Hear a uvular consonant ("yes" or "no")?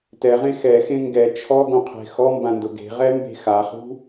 yes